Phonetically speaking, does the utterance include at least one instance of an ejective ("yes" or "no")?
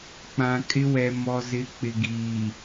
yes